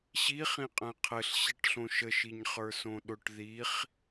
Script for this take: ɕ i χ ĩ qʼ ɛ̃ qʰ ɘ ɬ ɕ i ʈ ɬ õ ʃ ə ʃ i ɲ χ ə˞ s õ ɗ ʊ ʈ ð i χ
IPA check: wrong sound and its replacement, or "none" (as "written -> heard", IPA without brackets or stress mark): none